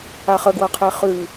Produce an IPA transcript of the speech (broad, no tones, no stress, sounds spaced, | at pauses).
a χ ə ɡ w ɐ qʰ e χ ʉ